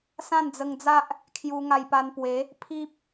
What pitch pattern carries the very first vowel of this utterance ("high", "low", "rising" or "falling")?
falling